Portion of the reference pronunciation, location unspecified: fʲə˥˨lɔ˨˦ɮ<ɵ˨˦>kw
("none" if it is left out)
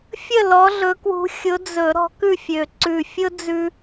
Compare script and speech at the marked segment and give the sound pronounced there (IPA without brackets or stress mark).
ɵ˨˦